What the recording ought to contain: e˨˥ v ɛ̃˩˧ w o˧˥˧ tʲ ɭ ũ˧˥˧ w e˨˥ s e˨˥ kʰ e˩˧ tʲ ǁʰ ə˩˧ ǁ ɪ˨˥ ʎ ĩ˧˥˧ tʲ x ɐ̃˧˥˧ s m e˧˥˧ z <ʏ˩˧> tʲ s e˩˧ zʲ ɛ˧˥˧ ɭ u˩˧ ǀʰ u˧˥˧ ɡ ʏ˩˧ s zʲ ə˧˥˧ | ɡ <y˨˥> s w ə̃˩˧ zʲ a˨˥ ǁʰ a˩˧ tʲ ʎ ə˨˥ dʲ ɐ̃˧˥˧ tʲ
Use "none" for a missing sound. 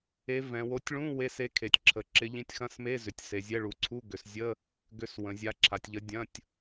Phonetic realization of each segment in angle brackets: ʏ˩˧, ʏ˨˥

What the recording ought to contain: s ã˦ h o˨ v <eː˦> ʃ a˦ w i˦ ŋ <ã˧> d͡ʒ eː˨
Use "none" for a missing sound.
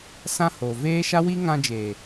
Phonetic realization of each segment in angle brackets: eː˦, ã˧

